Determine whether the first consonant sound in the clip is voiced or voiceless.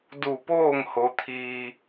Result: voiced